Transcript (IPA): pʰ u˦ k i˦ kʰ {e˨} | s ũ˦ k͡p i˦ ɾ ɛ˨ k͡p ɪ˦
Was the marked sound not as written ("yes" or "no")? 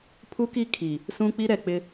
yes